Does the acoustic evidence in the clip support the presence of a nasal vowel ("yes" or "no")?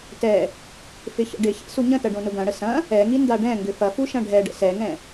yes